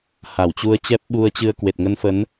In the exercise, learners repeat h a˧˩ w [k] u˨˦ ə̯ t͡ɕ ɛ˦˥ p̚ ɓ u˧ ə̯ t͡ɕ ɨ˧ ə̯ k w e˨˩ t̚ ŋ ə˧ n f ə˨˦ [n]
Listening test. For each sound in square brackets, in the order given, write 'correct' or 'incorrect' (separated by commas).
incorrect, correct